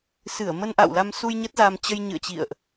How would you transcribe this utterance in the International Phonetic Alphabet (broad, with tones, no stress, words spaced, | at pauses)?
sɨ˧˩ə̯ mə˧nʔa̰˧˨wla˧msu˧j ɲə˦˥t̚za˧m t͡ɕə˧jɲɨ̰˧˨ə̯t͡ɕḭ˧˨ə̯ʔ